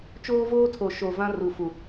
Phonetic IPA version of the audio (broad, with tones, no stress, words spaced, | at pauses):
t͡ʃoː˦voː˦tʰo˨ ʃo˨vã˦ ru˨fu˨